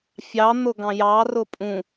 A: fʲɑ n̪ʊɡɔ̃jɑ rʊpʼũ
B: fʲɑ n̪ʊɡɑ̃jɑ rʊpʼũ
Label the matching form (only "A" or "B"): B